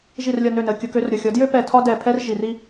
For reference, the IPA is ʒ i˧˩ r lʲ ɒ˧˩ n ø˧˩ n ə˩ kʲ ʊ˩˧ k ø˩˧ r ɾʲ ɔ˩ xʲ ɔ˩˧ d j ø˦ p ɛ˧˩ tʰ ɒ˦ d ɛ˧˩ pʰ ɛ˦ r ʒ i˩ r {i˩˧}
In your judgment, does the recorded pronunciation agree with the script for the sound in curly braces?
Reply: no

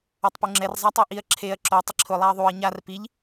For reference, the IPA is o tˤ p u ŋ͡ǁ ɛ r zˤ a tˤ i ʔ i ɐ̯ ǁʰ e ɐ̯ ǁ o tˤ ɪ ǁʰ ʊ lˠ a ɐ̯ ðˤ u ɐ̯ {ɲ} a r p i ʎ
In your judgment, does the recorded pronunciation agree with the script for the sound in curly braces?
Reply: yes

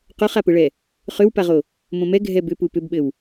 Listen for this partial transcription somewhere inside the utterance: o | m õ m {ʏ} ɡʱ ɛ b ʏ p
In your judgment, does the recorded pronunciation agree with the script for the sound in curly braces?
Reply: no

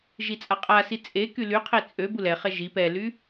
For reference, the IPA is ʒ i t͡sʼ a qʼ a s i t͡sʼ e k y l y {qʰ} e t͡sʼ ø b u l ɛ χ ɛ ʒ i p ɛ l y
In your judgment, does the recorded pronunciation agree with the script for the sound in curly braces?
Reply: yes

